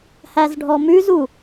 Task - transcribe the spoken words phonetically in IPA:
hæzɖʱɔmʉzu

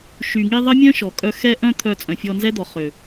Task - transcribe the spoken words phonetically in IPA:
ʃy˨ŋi˧ ðˤə˦mʲœ̃˦ʃɔ˨ kʼœ˧xɛ˦ʔœ̃˦ t̪ʰœ˧ t͡sʼœ̃˨fʲɔ˧nzɛ˦d̪ɔ˨ χø˨

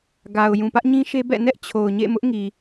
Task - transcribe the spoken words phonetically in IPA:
ɡa˨ʊ̯ jũ˨pä˦ʔɲĩ˦ʃe˦ bɛ̰˦˨ nɛ˦ʔ t͡ɕʰo˨ʊ̯ɲḛ˦˨mʊ˦ʔŋi˨

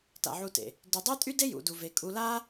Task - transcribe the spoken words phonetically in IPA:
ta̰˨ʕu˧tḛ˨ | dy˨dˤe˦tʼy˦de˦ jṵ˨du˨ve˨ kʼu˧ la˦

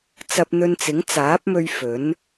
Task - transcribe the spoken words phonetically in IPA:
t͡sɐ˧p̚n̪ɵ˧nt͡sɪ˨˥ŋ t͡saː˨˥p̚mɵ˧ɥ fɵ˨˥n

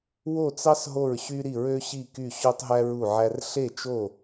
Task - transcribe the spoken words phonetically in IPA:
wo˥˧t͡sɑ˥s ɦo˥˧ɹɕy˥ɾi˥˧ ɹø˥ɕi˥˧ky˥˧ ɕo˥tˤɦæ˥ ɹu˥˧ʕæ˥r ɬe˥˧t͡ʃo˥˧

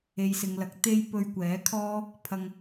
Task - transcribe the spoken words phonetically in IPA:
e˨jsɪ˨ŋlɐ˨˥k̚ t̪e˥j pɵ˧ɥkʷɛː˨˥kʰɔː˥ | pʰɐ˧ŋ

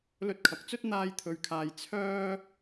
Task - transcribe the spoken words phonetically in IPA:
lɵ˧t̚kʰɐ˨k̚t͡sɵ˥t̚ n̪aː˥jt̪ʰɵ˧ɥkʰaː˧j t͡sʰœː˥

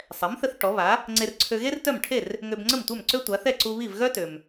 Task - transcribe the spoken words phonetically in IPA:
sˤɛ˩˥mθə˧θ ʈɔ˩˥βa˩˥ | ŋ͡ǀe˧rǀʰø˧ɣe˥rtœ˥˩m ʈʰe˥˩r | ŋø˧bŋ͡ǀə˥˩m tʷœ˥˩mǀø˥tʷa˩˥ θɛ˥˩ǀu˧ βi˥˩v ɣœ˥tø˩m

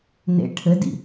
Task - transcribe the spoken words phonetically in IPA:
nḛ ʈʰɘdḭ

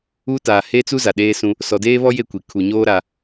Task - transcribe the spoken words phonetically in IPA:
u˦ taː˨he˦t͡su˦ za˨ɗeː˦sũ˦ | sɔ˨deː˦βɔ˦je˦˨ kʷi˨ kʰu˨ɲoː˦ ɾa˦

